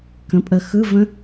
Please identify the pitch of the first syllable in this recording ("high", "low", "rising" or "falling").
rising